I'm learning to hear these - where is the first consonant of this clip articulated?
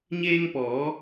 palate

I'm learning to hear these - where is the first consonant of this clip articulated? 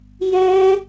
palate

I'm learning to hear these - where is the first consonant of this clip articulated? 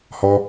throat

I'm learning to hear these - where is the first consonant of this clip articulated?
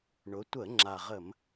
retroflex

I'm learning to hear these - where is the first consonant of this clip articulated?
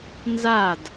tongue tip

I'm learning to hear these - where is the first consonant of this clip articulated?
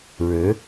retroflex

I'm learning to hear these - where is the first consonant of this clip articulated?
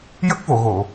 palate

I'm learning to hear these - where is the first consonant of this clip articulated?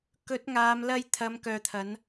velum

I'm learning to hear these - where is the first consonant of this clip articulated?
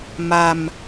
lips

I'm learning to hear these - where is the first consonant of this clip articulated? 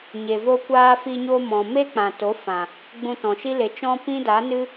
palate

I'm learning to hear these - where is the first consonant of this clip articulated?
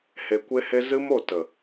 throat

